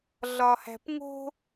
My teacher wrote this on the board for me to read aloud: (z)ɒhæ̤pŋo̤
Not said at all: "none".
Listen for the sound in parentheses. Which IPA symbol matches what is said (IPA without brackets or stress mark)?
ɮ